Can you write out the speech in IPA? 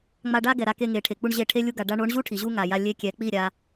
ŋ͡m a˧ ɖ a˦ ɡ ɛ˨ ɾ a˧ k e˧ ŋ e˨ ʈʰ e˨ k͡p u˦ ɳ ʑ e˦˨ ʈʰ e˦ lʲ u˧ ɡ a˨ ɖ a˧ ɳ o˨˦ ɳ ʑ u˦ ʈʰ i˨ ʑ u˦ ŋ a˨ j a˧ lʲ e˦ kʲ ɛ˨˦ k͡p i˦˨ ɾʲ a˦

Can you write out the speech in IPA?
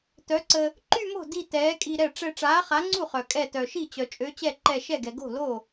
t œ˨˥ ǀ ə˧ | ǃ y˥˧ m o̤˥˩ d i˥˧ t ɛː˨˥ kʼ i˧ ɾ ɛ˥˩ ʈ͡ʂ ɛ˧ ʈ͡ʂ aː˨˥ χ a˨˥ ŋ͡ǀ u˥˩ χ œ˩ kʼ ɛ˧˩ t œ˩ ʃ i˥˩ t͡ɕ œ˩ t͡ʃʼ ø˨˥ t͡ɕ ɛ˥˩ ǃ ɛ˧˩ ʃ ɛ˥˩ ɡ ɛ˩ ɡ o̤˥˩ l o˥˩

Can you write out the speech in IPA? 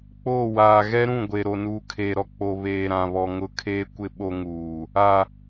k͡p oː˦˨ w aː˨ ɣ ɛ˦ ɾ ũ˦˨ ɡʷ e˨ ɾ o˨ n uː˨ kʰ eː˨ ɾ ɔ˨ k͡p o˨ β eː˨ ɾ ã˨ β ɔ˨ ŋ ʊ˦ kʰ eː˦ kʷ ɪ˦ ɓ o˦ ŋ uː˨ | a˨

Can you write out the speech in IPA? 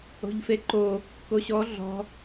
o̤ ʎ f e ǃ o | k o ɕ ɔ ɮ ɔ̤

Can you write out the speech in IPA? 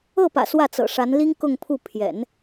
ɤ˥˩ p ä̰˨˩ s w ä˥˩ t͡s ɤ̰˨˩ ʂ a˧˥ n l i˥ ŋ k ʊ˥˧ ŋ pʰ u˥˩ pʰ j ɛ̰˨˩˦ n

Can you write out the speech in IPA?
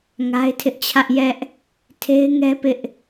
ŋ a˦ ɪ̯ tʰ ɪ˦ ʔ t͡ɕʰ ä˦ ʔ j ɛ˦ ʔ | tʰ e˦ ɪ̯ ŋ ɛ˦ p ɪ˦ ʔ

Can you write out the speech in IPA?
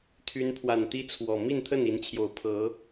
t̪ʰ y˨˦ n pʰ w a˨˩ n t̪ i˦ t͡sʰ w ɔ˨˩ m i˥˨ n t̪ʰ ə˥˨ n i˨˦ n t͡ɕʰ j o˨˩ ʊ̯ pʰ ɤ˨˦

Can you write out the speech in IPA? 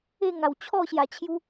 e˥˧ ŋ a˨˩ w t͡ɕʰ ɔ˥˧ ɕ j a˨˩ t͡ɕʰ j u˧

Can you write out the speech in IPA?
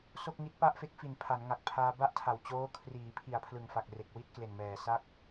s o˥˩ k̚ ŋ i˦˥ t̚ p a˥˩ ʔ f e˦˥ k̚ f i˨˩ n pʰ a˩˦ n ŋ a˨˩ k̚ pʰ aː˧ b a˥˩ ʔ tʰ a˨˩ w t͡ɕ oː˦˥ kʰ r iː˩˦ pʰ i˨˩ a̯ pʰ l ɯ˨˩ ŋ f a˨˩ k̚ r e˨˩ k̚ w i˥˩ t̚ k l e˨˩ n m ɛː˨˩ s a˥˩ k̚

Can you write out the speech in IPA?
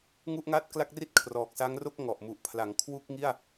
ŋ u˥˩ ʔ ŋ a˥˩ t̚ k l a˥˩ k̚ r i˥˩ t̚ kʰ r ɔː˨˩ k̚ s a˦˥ ŋ r o˥˩ k̚ ŋ ɔ˨˩ ʔ m u˨˩ ʔ pʰ l a˩˦ ŋ kʰ w u˥˩ k̚ ŋ i˥˩ a̯

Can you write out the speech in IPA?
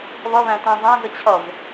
β ʌ β æ̃ t æ̃ zˤ æ̃ z ə t͡ɕʰ ʌ v

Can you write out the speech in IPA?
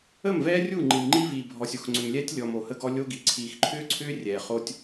ə˦˨ m v ɛː˦ rʲ u˦˨ ŋ͡ǃ i˨ m ŋ͡ǃ i˦ v iː˨ bʱ ɔ˨ sʲ o˨ x ŋ͡ǀ ʏ˨ m lʲ ɛː˦ tʲ lʲ ɔ˨ m o˨ h ə˦ ɡ ɔ˦ lʲ o˦ ɡ i˨ ǀʰ iː˨ x ǃʰ ʏː˦ ǀʰ ʏː˦ rʲ ɛː˨ χ o˦ tʲ

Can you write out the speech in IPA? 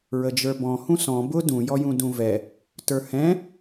ɹ ə d͡ʒ ə˞ b ɔ̃ h ũ s ɔ̃ b ʊ d ũ j ɔ j ũ d ũ v ɛ | t ə˞ h ɛ̃

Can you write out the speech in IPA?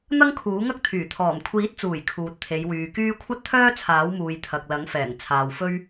n̪ ɐ˥ ŋ kʰ uː˨˥ ŋ ɐ˥ k̚ t̪ʰ yː˨˩ t̪ʰ ɔː˨˩ m kʷʰ iː˨˥ t̚ t͡s uː˨˩ j kʰ uː˨ t̚ t̪ʰ e˨˧ j w yː˨ k yː˥ kʷʰ ɐ˥ t̚ t̪ʰ œː˥ t͡sʰ aː˨˥ w m uː˨ j t̪ʰ ɐ˨ k̚ l ɐ˨˥ ŋ f ɛː˨˩ ŋ t͡sʰ aː˨ w f ɵ˥ ɥ

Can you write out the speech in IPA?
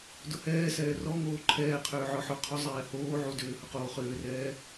d ʊ h ɛː s ɛː r ɔ ŋ oː ǃʰ ɛː qʰ ʏː ʕ ɔ ħ ʊ qʰ ʊ zˤ ɛː h oː ʕ u d ʏː h ʊ q oː χ ʏː r ɛː

